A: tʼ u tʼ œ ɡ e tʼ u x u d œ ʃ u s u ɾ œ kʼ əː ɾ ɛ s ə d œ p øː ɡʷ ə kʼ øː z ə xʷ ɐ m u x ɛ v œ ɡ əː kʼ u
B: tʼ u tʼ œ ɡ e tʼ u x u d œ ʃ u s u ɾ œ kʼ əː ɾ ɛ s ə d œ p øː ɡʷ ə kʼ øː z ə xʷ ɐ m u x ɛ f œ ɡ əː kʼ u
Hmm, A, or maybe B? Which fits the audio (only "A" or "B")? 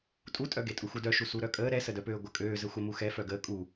B